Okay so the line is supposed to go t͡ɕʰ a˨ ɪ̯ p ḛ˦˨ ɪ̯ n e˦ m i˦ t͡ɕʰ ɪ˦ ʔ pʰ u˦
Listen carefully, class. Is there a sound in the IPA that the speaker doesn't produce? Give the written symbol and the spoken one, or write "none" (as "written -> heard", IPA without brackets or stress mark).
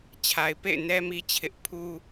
e˦ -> ɛ˦